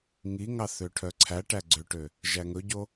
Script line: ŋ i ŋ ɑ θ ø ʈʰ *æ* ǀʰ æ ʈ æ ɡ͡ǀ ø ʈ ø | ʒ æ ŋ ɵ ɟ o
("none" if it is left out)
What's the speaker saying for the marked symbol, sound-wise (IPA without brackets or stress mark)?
œ